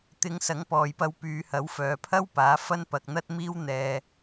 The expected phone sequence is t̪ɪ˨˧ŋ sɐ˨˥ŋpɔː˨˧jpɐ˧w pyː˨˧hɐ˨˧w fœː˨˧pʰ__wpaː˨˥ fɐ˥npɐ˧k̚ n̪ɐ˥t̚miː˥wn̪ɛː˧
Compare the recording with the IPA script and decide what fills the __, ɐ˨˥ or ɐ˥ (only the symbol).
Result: ɐ˥